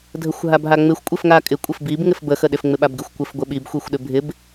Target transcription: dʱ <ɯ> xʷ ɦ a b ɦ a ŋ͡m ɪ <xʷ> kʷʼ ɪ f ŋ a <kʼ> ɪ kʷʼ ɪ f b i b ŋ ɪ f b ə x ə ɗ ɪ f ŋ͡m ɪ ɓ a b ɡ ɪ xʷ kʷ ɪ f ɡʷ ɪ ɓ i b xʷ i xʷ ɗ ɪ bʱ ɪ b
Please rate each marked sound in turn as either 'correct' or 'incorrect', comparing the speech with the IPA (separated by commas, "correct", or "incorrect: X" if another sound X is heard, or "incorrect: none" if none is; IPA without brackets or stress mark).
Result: incorrect: ə, correct, correct